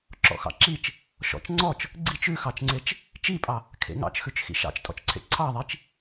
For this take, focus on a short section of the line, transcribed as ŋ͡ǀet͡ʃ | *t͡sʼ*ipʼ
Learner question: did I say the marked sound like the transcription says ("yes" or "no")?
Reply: no